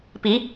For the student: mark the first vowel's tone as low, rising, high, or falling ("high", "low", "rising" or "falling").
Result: rising